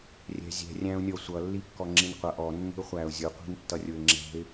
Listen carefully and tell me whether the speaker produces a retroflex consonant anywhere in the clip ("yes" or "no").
no